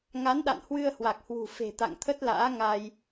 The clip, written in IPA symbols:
ŋ a˨˦ n ɗ a̰˧˨ n h w ɨ˧ ə̯ h w a˨˩ k̚ h w ṳ˨˩ f e̤˨˩ t̪ a̰˧˨ ŋ t̪ʰ ə˦˥ t̚ l a̰ː˧˥ ŋ a˧ j

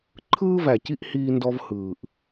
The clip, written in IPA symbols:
ǃʰ ɯː˦ v æ˨ c i˦ ʔ h iː˦ n d ɔ˦ v h ɯː˨ ʔ

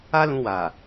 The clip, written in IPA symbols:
a˦ l ũ˧ w a˨

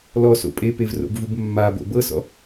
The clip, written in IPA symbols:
l ɔ s o̰ pʼ e p e v r o̰ b v u b mː a b o̰ b ɤ s ɔ̰

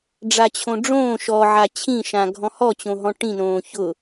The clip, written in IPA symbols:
ɖ͡ʐ a t͡ɕʰ õ ɖ͡ʐ õː ʃ ɔ ʕ a t͡ɕʰ ĩ ʃ ã ɡʱ ɔ̃ h ɔ t͡ɕ õ ɦ ɔ̃ ʈ ĩ n õː ç ʊ

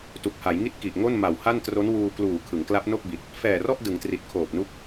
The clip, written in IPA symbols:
t u˨˩ k̚ h a˩˦ j ŋ i˥˩ t̚ k i˨˩ ʔ ŋ o˥˩ n m a˨˩ w h a˥˩ n t r o˦˥ n w uː˧ k l uː˨˩ kʰ ɯ˩˦ ŋ k l a˦˥ p̚ n o˥˩ k̚ b i˨˩ t̚ | f ɛː˨˩ r ɔ˥˩ ʔ d ɯ˩˦ ŋ t r i˨˩ t̚ kʰ oː˨˩ p̚ n u˦˥ k̚

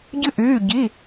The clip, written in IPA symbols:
ɟ ɨ˥ ʔ yː˧˥˧ ɟ i˧˥˧

